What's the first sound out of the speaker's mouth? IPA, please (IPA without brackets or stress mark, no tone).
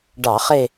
ɖ